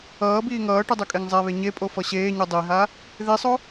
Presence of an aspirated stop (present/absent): absent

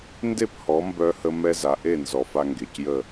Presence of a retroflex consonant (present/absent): absent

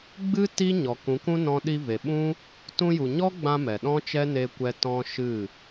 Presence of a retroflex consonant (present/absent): absent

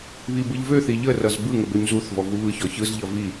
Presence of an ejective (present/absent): absent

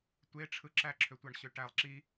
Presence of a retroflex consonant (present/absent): present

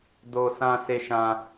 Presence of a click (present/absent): absent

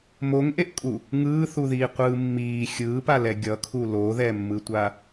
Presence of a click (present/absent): absent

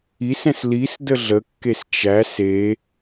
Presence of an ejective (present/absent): absent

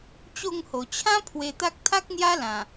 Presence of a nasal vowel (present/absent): present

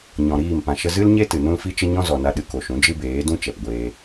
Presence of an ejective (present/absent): absent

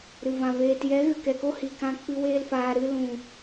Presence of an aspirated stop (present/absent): absent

